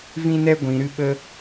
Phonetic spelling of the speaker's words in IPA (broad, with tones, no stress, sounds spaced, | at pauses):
v ĩ˦ n ɛ˦ ɡʷ ĩ˨ ɾ ɨ˧ ɓ ə˧